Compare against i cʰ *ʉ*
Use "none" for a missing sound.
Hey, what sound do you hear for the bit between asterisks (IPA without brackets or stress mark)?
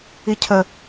ə